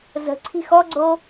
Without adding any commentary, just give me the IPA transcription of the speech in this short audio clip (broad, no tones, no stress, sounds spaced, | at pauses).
z ə̤ ǀʰ i̤ x ɔ ɡ͡ǀ o